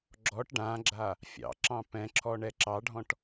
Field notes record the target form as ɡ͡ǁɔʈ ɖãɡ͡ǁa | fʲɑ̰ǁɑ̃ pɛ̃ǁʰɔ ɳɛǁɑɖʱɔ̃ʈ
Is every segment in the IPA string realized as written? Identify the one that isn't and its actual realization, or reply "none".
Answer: none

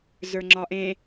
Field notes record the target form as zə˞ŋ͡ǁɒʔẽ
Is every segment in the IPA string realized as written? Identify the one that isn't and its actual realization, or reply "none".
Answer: none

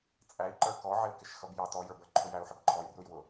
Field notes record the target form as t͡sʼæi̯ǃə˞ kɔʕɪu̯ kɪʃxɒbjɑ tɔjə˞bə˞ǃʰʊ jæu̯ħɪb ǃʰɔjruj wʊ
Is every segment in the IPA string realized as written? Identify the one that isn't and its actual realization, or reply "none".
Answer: ɒ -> ʌ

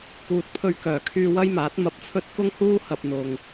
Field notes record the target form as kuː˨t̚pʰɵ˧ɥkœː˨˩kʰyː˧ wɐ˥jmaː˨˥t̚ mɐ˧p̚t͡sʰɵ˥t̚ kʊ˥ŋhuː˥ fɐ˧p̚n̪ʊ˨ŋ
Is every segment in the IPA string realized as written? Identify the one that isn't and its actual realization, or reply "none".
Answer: f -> h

